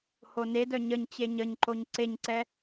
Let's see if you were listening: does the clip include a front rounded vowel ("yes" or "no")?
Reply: yes